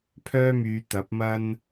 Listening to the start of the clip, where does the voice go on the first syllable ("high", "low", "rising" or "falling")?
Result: high